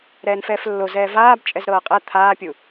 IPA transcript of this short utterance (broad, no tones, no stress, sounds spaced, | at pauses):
ɾ ɛː n f ɛː f lː o z ɛː v aː b t͡ʃʼ ɛ z ɾ ɤː qʼ ɛ t̪ʰ aː pʲ u